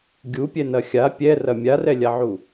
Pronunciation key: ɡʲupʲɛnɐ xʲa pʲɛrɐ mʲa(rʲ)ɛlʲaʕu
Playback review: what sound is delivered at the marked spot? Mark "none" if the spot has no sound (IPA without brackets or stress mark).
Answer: r